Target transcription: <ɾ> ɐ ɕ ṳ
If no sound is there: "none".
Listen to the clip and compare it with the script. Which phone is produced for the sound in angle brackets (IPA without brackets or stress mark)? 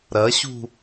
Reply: ɾ